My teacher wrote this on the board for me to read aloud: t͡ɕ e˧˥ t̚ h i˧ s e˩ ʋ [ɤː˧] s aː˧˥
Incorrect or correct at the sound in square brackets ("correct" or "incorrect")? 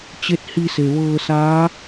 correct